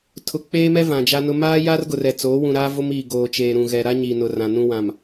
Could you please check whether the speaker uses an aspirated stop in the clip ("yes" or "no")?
yes